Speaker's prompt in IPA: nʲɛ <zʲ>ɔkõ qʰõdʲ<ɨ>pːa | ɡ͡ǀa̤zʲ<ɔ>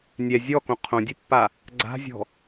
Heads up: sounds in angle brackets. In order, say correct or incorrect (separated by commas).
correct, correct, incorrect